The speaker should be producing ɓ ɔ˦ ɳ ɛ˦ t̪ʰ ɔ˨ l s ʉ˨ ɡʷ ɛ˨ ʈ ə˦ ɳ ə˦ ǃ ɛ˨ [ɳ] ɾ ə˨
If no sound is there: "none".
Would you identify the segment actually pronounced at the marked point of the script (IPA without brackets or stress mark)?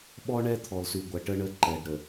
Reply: ɖ